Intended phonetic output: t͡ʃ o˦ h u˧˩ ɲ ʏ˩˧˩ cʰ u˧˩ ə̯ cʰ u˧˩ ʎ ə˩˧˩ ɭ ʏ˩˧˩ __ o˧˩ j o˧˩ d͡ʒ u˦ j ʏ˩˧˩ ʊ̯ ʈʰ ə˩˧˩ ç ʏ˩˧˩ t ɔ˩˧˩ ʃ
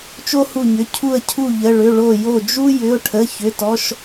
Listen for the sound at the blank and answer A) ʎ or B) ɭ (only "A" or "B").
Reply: B